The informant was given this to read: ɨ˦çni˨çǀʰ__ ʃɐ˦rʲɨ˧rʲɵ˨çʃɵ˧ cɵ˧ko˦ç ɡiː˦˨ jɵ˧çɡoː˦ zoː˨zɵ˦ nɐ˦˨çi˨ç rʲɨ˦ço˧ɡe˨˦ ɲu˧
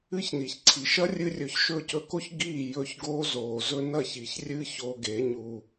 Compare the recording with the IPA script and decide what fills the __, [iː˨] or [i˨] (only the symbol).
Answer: i˨